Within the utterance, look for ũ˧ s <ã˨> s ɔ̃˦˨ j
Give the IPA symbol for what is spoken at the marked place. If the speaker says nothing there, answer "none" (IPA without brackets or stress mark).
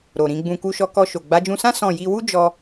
ã˦